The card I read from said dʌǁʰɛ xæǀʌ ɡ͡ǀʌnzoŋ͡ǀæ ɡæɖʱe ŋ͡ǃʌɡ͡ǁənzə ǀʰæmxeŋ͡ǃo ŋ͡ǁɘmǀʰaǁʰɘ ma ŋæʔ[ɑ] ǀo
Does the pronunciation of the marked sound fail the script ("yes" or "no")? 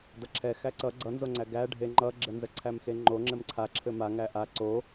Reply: yes